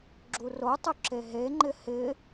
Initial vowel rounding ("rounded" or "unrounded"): rounded